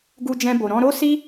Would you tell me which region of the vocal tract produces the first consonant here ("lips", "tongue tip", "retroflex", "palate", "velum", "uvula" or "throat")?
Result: velum